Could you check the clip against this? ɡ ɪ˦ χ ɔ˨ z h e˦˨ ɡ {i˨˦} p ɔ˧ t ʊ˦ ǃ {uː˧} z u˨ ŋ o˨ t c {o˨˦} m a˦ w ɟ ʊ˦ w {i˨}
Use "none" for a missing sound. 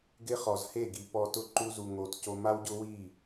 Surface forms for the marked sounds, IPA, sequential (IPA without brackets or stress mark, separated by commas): i˨˦, u˧, o˧, i˦˨